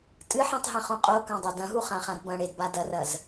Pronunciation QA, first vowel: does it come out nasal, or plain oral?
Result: oral